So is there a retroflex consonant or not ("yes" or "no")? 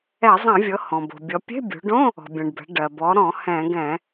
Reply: yes